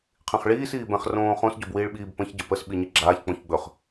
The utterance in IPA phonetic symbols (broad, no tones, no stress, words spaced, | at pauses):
qʰĩχɭiːs iːbɛ̃χ rõːχõs ɟobwiːɭɓiːb pə̃ç ɟəpəs ɓiɲiɡ͡ǁaːç k͡põçɡ͡bɵχ